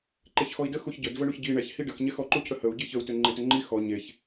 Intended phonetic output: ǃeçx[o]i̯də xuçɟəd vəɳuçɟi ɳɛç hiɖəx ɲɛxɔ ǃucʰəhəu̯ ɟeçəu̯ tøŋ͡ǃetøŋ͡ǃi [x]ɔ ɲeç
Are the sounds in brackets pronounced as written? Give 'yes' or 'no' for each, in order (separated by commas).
no, yes